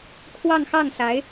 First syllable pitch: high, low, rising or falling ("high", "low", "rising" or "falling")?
falling